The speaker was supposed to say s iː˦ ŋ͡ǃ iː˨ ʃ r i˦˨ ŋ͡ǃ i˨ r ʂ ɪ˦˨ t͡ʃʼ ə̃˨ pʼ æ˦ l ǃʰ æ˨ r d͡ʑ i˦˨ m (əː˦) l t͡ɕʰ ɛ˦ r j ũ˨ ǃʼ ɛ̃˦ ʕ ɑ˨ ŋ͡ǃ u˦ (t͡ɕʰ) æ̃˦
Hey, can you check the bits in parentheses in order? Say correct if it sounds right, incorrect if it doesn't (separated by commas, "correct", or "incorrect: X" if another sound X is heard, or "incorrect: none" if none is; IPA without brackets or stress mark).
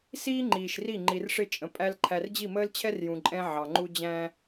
correct, incorrect: d͡ʑ